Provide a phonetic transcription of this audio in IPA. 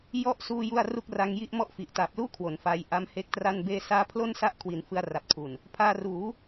jɔ˥˩ʔ suː˥˩ju˥˩a̯ ru˥˩k̚ ra˧ŋji˥˩ʔmɔ˥˩ʔfi˨˩ʔ ta˨˩p̚luː˥˩ kʰwo˩˦nfa˧j ʔa˦˥mhe˦˥k̚tra˥˩nbeː˥˩ saː˦˥pʰlo˥˩nsa˦˥ʔkʰwi˩˦n fɯ˧a̯ra˨˩p̚tʰu˨˩n | pʰaː˧ruː˩˦

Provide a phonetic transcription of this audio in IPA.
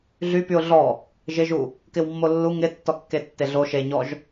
ɮypyʊ̯ ɮɔ | ʒɪʒu | kɪwmːolːu ŋɪ tːɔkːetːeɮo ʃeɲɔʒ

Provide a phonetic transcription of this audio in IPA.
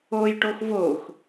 ojʈox vox

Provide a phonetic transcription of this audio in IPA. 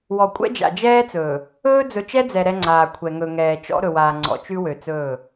wɔ˨kʷʼɛ̰˦d͡ʒa̰˨ d͡ʒɛː˦t͡sɵː˨ | ɵː˦d͡zɵ˨ t͡ʃɛ˦d͡zɛ˨ ɾɛ˦ŋ͡ǀaː˨kʷʰɛ˨ ŋɵ˨ŋɛː˨ t͡ʃɔ̰˦ ɾɵ˨waː˨ ŋ͡ǀɔ̰˨t͡ʃʉ˦ wø˨t͡sɵː˦˨

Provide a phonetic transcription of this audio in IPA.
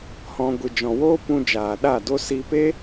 hɔ̃˧ ɡʷɨ˨d͡ʒɔ̃˨woː˦pũ˧ d͡ʒaː˨ɗa˦˨do˦ si˧pe˦

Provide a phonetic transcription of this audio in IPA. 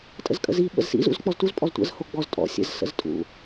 tʼə̰zkʼə̰zi ɓə̰zsḭ zṵzk͡pɔztuz pʼɔztʷə̰z hoɡ͡bɔz tʼɔ̰ sʲə̰z sə̰ztʼṵ

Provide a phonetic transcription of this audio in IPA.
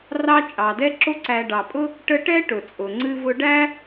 rɑ˦ t͡ʃʼɑ˩dɛ˦ǁo˦ ǀæ˨ɖɑ˩pʼʊ˥ | ʈə˦ʈɛ˥ ʈʊ˩t͡sʼʊ˩ŋ͡ǀɨ˥vʊ˥ ɖæ˥

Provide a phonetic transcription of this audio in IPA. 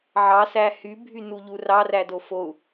ʕɑsæ hybʱynuʎu rɑrædo fou̯

